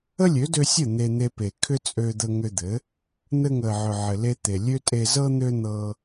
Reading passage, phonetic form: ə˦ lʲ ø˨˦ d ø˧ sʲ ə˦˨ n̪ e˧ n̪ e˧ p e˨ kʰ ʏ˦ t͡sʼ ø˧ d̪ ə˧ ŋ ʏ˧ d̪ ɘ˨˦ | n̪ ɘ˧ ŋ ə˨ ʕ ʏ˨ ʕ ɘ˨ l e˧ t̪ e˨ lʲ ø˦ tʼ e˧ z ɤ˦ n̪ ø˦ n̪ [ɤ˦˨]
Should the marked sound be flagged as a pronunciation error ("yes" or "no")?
yes